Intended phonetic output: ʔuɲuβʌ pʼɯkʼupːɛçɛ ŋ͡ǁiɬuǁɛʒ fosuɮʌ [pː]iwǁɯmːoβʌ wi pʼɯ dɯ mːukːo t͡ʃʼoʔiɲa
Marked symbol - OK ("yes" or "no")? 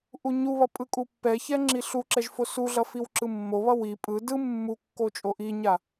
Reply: no